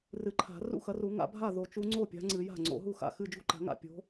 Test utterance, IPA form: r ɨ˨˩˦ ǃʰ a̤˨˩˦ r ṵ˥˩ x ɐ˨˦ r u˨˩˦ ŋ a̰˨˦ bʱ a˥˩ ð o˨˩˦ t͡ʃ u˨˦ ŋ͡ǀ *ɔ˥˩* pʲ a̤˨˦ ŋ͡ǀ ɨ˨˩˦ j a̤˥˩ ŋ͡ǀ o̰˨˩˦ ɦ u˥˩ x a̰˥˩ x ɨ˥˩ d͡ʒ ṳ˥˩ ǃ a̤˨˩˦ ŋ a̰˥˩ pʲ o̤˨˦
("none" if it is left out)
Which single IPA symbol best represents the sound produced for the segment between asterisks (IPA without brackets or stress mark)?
o˥˩